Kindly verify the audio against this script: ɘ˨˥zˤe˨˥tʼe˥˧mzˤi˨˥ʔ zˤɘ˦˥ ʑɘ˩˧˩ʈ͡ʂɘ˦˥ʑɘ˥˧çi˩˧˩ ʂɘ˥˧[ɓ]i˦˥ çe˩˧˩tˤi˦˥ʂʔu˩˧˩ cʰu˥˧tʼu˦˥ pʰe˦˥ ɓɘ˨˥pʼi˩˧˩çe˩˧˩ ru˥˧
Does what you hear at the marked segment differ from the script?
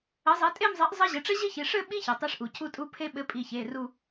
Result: no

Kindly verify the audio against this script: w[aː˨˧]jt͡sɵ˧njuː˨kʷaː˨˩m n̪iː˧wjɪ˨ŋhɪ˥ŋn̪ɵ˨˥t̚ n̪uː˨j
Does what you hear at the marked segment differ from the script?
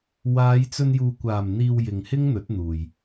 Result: no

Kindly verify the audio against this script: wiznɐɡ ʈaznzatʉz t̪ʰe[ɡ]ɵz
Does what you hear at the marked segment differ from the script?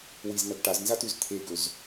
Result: no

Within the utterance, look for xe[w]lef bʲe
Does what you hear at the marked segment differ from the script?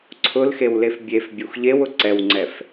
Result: no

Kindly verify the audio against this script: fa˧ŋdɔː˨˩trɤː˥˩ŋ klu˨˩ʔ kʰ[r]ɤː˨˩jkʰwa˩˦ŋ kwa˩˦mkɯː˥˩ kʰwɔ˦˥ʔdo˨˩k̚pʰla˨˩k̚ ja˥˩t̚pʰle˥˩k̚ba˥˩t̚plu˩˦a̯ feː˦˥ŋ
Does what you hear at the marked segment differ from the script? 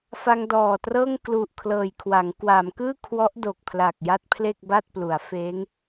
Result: yes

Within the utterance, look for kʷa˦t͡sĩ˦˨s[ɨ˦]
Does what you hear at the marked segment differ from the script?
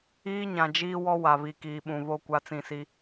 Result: yes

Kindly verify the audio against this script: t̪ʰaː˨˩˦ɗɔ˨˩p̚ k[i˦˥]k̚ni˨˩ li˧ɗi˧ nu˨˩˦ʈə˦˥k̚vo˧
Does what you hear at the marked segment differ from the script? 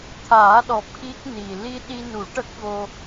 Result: no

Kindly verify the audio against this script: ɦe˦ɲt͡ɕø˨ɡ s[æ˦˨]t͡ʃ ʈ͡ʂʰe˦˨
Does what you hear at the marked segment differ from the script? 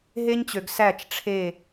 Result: no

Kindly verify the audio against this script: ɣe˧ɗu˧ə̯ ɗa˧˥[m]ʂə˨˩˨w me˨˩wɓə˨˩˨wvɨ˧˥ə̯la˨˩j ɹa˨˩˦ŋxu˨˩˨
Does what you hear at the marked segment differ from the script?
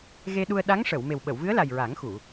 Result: yes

